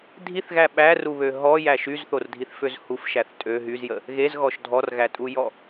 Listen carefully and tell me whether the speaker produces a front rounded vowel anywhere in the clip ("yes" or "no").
yes